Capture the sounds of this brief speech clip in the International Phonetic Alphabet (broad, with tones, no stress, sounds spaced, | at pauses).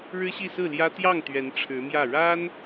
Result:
ɻ ɻ̩˥ ɕ i˥˧ s ɹ̩˥˩ l j ä˥ t̪ j ɑ˥˩ ŋ t̪ ɥ ɛ˧˥ n ʈ͡ʂʰ ɻ̩˧˥ m j ä˥˩ ɻ a˥ n